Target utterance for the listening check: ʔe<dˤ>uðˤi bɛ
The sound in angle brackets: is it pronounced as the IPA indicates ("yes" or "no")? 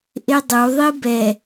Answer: yes